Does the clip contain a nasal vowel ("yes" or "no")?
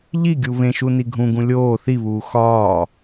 yes